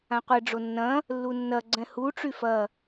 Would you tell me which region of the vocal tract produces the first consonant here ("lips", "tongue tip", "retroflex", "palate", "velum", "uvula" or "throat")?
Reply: uvula